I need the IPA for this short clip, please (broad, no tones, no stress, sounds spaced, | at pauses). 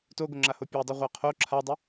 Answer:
t o ɡ o ŋ͡ǁ a h o pʲ a dˤ ʉ ʁʷ a qʰ o ǁʰ a dˤ ʊ